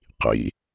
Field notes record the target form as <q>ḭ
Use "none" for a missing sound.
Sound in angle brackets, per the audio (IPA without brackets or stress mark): q